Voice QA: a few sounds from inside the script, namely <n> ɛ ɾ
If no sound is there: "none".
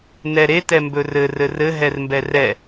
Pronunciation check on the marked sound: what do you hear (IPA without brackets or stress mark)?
n